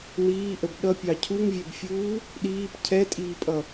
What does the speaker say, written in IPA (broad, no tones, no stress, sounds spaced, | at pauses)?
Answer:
n̪ iː ʔ ə b ɗ ʌ pʲ ɑ cʰ u ŋ vʲ ɛ b fʲ uː | ɗ iː p cʰ ɛ tʼ iː pʼ ʌ